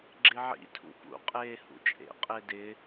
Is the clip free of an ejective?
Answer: no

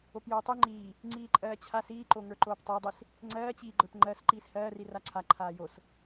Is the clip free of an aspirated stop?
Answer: no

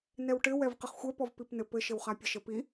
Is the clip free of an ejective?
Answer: yes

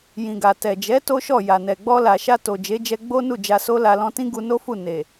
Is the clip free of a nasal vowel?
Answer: no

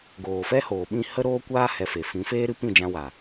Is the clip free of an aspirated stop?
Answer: yes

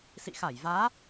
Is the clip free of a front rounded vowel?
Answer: yes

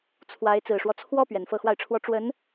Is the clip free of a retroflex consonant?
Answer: no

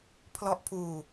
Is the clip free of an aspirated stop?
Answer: no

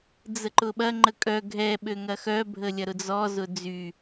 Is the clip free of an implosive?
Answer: no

